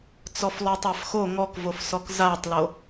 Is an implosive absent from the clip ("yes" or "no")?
yes